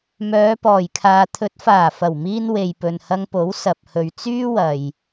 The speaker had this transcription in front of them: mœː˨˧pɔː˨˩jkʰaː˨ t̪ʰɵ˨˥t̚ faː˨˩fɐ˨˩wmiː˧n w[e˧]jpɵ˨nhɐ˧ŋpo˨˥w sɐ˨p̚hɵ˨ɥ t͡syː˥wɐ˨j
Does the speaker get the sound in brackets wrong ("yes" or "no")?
yes